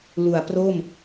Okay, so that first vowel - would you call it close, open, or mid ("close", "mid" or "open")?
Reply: close